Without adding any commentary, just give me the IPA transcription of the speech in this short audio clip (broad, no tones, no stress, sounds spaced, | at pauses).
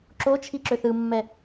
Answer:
ǁ o t͡ʃʰ i ǁ ø θ ɯ mː ɛ